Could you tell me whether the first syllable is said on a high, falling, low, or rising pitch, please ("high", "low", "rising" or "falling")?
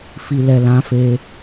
low